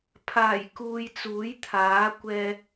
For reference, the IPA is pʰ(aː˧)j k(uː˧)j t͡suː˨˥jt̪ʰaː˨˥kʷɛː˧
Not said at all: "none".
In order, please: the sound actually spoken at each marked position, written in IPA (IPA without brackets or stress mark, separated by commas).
aː˨˩, uː˨